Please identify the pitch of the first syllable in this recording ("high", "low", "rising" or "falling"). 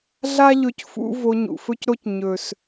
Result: high